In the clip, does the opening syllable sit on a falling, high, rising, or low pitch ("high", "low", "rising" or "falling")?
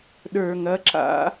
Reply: low